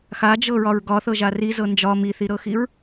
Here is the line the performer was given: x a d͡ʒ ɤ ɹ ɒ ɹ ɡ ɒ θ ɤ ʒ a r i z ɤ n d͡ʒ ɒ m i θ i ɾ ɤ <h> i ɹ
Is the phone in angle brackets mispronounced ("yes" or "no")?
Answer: yes